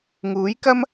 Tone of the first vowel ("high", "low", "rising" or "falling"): rising